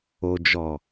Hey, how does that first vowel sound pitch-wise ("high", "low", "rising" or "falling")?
low